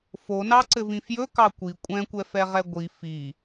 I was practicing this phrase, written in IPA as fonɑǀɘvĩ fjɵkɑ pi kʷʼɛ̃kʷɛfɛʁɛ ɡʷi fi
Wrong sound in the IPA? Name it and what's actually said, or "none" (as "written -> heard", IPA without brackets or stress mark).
p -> kʷ